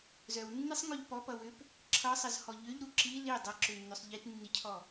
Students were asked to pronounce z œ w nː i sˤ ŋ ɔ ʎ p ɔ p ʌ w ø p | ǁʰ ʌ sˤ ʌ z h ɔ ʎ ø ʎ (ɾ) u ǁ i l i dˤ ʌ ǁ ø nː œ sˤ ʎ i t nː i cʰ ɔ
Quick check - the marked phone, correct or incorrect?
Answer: correct